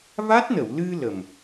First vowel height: low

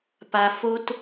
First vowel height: low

